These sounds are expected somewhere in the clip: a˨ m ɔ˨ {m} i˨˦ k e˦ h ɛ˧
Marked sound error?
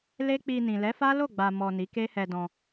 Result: yes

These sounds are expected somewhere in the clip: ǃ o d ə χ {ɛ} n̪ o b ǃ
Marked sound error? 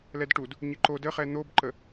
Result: no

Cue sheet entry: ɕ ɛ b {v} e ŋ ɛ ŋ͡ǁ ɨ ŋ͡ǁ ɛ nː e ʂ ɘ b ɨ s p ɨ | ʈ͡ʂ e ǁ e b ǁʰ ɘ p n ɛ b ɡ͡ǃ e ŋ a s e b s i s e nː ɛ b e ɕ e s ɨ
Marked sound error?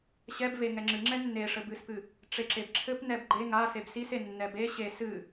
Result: no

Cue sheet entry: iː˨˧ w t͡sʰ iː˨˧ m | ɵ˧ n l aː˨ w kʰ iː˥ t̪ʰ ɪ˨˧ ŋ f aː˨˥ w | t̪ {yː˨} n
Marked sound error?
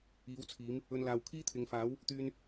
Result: yes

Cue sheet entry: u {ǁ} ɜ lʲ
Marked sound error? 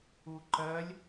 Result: yes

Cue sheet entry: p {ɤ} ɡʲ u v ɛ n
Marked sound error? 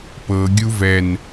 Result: no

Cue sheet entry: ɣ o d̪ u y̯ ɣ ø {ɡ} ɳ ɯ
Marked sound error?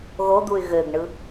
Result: no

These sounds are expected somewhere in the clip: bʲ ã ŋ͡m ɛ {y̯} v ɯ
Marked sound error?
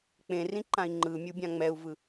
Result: yes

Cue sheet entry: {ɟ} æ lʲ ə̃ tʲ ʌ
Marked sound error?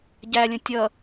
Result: no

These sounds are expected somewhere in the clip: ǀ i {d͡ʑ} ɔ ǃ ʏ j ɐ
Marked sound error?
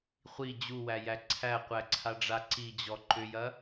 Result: no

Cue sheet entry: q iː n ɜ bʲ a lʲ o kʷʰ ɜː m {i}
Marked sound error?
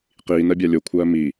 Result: no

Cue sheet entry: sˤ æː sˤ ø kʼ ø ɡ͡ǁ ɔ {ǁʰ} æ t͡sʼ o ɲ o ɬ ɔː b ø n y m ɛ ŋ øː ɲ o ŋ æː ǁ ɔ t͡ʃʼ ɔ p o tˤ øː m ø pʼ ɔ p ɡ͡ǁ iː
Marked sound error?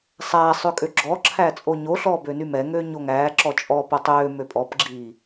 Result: no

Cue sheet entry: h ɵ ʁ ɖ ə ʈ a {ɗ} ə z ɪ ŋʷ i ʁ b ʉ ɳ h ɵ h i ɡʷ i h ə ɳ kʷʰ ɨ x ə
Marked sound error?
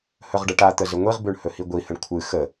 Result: yes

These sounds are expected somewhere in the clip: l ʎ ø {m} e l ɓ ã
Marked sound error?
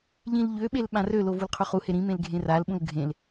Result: yes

